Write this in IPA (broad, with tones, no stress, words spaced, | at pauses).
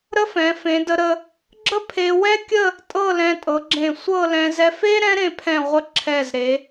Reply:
ɾə˥fɛ̃˩˧ fẽ˩˧də˧ɾə˧ | ɡ͡ǁə˥pʰe˧ wɛ˥kʲə˥˧ | tʼɤ˥˧lɛ̃˧tʼɤ˩˧ɡ͡ǁẽ˧˩ sʷɤ˥˧lɛ̃˧ zɛ˧fe˥ ɾɛ̃˥ɾẽ˧pʰɛ̃˧˩ʁʷə˧ ǁʰɛ˧˩zɾe˩˧